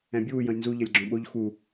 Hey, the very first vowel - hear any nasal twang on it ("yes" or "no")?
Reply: yes